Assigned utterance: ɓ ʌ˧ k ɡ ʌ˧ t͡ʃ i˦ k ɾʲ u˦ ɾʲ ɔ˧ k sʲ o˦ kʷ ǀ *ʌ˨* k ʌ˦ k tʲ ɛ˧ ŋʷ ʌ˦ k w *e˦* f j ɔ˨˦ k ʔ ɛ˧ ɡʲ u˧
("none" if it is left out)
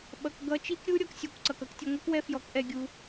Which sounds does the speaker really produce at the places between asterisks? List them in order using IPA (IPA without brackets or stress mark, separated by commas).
ʌ˨, ɛ˦